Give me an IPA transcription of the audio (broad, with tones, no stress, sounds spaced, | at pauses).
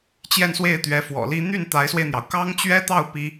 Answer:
t͡ɕ j ɛ˥˧ n s w e˥˩ ɪ̯ t̪ ɥ ɛ˧˥ f w ɔ̰˨˩ l i˥ n̪ y˥˩ n t̪ a˧˥ ɪ̯ s w e˧ ɪ̯ n̪ j ɑ˩ ʊ̯ k ɑ˥ ŋ t͡ɕ ɥ ɛ˥ t̪ ɑ˥˩ ʊ̯ p i˥